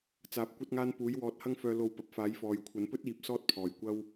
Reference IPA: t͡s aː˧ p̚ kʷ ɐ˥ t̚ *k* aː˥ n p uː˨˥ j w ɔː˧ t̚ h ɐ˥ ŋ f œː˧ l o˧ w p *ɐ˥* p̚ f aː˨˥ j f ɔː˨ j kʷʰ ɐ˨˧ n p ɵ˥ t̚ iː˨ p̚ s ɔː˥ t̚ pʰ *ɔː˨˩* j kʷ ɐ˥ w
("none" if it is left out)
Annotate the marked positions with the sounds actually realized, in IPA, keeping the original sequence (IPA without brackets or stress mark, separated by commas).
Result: ŋ, ɐ˨, ɔː˨˩